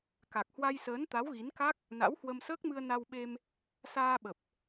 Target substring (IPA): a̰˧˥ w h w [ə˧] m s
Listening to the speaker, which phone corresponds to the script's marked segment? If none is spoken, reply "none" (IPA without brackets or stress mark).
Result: ə˧